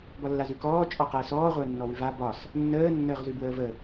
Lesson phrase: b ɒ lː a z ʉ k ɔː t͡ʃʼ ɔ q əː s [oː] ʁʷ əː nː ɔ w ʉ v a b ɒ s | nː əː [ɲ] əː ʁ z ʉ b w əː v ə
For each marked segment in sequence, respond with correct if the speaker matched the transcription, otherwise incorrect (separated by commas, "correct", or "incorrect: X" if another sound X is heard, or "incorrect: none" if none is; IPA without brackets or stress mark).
incorrect: ɔː, incorrect: nː